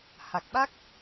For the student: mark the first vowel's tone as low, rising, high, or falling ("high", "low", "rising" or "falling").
low